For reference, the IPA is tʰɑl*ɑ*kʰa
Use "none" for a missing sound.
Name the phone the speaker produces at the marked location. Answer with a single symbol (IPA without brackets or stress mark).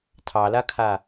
a